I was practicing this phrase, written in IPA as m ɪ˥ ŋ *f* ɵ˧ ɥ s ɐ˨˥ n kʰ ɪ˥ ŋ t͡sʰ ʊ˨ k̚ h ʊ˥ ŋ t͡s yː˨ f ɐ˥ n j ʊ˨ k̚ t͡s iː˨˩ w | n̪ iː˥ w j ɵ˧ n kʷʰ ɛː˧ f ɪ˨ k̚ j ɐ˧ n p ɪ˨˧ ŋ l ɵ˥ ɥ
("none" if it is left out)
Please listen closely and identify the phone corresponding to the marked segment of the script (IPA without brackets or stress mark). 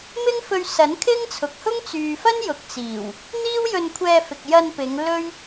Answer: f